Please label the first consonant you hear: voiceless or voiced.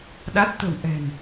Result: voiced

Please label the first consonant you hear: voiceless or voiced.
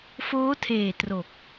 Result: voiceless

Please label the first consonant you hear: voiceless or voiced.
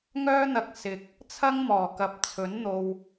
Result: voiced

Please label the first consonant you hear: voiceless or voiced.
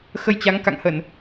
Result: voiceless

